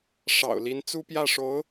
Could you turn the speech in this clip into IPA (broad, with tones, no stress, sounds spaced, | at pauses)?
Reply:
ʂ ɑ̰˨˩ ʊ̯ l i˧˥ n t͡s u˥ p j ä˥˩ ʂ o˧˥ ʊ̯